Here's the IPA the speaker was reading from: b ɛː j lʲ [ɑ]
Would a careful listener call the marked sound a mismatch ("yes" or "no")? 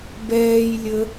yes